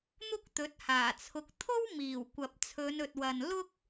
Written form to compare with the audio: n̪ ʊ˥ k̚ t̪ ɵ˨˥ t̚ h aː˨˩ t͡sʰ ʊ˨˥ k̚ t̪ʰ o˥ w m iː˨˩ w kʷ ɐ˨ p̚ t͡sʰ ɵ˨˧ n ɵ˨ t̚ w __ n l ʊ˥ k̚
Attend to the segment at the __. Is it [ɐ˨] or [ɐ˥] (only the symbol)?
ɐ˨